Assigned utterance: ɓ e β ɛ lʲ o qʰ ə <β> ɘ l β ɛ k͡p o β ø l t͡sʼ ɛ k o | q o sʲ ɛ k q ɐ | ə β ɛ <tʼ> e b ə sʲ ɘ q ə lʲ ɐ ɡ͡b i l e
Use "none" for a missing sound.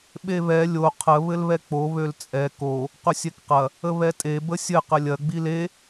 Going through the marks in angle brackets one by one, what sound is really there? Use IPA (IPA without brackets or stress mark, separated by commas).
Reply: β, tʼ